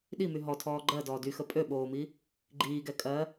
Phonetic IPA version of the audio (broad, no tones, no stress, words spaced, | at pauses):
ɗimy ɦɔtʰɔː ɡ͡ǃɜdɔː dyxə pʼøɓoːmi | ɡ͡ǃiːɡɛ kʼɜ